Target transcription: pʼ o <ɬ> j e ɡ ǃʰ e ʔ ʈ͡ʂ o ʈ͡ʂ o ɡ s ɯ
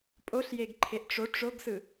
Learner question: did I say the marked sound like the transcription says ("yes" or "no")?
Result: yes